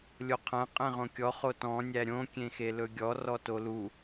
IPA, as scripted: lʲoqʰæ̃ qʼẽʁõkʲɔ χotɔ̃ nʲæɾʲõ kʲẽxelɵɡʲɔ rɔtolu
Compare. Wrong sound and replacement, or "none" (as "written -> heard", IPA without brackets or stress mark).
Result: none